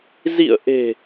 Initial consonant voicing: voiced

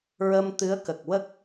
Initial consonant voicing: voiced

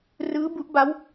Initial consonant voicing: voiced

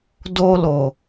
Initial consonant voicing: voiced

